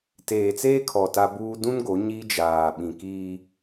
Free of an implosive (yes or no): no